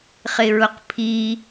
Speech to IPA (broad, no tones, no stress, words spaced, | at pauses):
χɪɹʊqpʰi